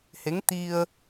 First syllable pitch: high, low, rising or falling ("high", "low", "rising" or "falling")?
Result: rising